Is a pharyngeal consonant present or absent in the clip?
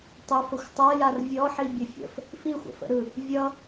present